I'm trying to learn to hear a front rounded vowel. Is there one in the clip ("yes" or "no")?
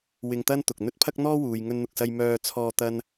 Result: yes